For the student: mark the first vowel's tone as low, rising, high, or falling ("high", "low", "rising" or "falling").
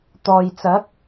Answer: low